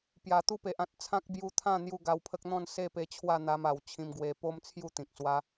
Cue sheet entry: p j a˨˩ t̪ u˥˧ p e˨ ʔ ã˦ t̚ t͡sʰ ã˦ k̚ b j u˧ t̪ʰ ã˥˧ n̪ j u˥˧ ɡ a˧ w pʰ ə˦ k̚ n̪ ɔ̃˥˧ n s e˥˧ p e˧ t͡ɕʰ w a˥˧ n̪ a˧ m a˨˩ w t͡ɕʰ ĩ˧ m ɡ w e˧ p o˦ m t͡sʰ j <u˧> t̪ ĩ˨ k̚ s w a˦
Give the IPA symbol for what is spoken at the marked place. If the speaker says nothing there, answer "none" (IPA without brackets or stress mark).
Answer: u˥˧